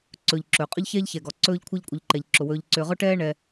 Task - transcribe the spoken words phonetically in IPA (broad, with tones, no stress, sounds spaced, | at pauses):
ǀ ɵː˨ ʎ ǁ ɵː˩ qʼ ɵ˥ ʎ ç ɛː˥ ʎ ç ɛ˩ ɡ ɔ˩ ǀ ɵː˦ ʎ kʷʰ ɛ˦ ʎ kʷʼ ə˨ ʎ ǃ ɛ˩ ʎ ǁ ʊ˩ w ɵː˨ ʎ ǀ ʏː˨ ʁ ʊ˥ ʈ ɛː˥ ɳ ɛ˨